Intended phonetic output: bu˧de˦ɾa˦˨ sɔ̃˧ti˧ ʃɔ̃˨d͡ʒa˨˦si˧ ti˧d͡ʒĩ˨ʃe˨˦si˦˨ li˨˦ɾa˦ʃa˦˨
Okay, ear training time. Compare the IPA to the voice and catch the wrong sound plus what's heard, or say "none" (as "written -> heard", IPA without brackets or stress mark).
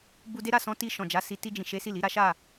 none